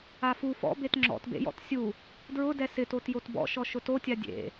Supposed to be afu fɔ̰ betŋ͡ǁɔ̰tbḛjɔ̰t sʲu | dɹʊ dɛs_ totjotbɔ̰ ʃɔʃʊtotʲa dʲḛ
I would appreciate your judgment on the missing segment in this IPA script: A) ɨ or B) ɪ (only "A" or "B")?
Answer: B